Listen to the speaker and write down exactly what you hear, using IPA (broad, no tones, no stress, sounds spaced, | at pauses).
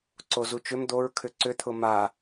ǀ o z u t͡ʃ ʏ m d̪ o ɹ kʰ ʏ ǀ ʏ t̪ʰ ʊ m a